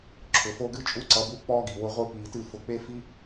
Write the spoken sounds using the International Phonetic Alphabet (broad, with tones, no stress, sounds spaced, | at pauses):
ǁʰ ʊ˨ f o˦ ɡ ɨ˦ t͡ʃʼ u˦ ǀ ʌ˧ b u˦ k͡p ɔː˦ ɡ i˨ w ʊ˧ ʁʷ i˧ p iː˨ t ɨ˦˨ f ʊ˨ k͡p e˦ f i˦